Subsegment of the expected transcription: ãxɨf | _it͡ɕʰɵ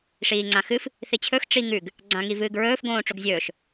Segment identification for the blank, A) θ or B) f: A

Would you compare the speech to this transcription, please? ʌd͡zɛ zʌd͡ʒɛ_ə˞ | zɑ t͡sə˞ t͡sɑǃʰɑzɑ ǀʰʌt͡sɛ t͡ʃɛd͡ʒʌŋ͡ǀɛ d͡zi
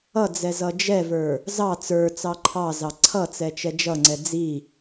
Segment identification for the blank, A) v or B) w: A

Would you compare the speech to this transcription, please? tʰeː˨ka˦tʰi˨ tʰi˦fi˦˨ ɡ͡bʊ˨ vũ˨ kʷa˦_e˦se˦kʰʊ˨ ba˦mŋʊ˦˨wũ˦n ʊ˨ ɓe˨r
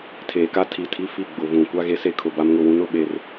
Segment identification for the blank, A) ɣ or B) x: A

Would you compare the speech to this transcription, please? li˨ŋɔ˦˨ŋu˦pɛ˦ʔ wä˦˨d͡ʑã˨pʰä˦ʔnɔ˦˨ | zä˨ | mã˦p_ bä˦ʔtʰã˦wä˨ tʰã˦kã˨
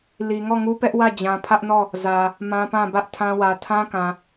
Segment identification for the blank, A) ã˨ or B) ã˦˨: B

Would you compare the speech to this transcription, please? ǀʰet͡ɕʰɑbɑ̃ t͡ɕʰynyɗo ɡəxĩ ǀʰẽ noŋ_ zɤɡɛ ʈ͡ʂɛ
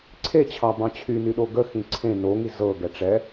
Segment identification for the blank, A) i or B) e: A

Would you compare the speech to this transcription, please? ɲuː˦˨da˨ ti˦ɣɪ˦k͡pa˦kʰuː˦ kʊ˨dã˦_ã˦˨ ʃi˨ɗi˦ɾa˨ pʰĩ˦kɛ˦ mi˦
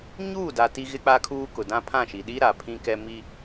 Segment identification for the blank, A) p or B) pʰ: B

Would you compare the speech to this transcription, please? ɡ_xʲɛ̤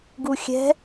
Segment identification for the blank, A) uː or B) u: B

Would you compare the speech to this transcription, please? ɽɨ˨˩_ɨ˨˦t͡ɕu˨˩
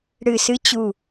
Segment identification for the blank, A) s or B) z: A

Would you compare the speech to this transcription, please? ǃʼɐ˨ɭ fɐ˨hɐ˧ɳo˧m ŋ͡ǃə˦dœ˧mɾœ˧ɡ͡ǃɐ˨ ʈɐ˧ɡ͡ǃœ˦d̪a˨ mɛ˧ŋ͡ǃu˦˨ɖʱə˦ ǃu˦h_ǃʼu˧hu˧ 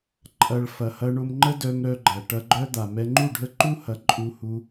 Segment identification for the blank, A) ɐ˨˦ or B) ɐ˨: A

